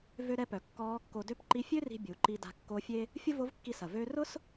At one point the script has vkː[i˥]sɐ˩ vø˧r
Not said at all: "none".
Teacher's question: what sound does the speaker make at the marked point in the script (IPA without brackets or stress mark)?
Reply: i˧